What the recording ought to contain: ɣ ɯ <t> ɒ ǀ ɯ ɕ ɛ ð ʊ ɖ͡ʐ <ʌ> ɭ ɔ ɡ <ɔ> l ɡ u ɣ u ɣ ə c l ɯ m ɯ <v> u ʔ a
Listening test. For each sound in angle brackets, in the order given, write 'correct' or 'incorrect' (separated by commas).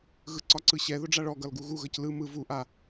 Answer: incorrect, incorrect, incorrect, correct